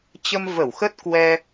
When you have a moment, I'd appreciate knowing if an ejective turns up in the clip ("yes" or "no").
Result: no